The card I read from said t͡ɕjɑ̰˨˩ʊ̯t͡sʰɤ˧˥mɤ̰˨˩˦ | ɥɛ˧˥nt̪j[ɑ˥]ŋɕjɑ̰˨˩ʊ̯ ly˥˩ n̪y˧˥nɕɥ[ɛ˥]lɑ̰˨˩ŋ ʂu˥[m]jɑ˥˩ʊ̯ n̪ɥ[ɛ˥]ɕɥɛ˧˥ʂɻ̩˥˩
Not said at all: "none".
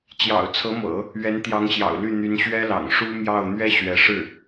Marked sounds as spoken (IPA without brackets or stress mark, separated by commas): ɑ˧˥, ɛ˥, m, ɛ˥